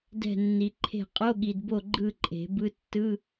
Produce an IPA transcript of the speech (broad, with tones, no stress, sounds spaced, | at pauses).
d ɛ̤˦˨ nː i˨ ǃʰ e̤˦˨ qʼ o˧˥˧ ɠ i˨ d b o˦˨ ɡ͡ǃ ɯ˦˨ ǃʼ e̤˨˩˦ b ɯ˦˥ tː ɯ˧˥˧